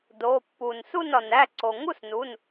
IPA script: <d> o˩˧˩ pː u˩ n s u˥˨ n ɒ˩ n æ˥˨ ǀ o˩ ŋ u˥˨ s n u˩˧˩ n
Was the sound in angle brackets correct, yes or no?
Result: yes